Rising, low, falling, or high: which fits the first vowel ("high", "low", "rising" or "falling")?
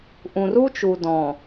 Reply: low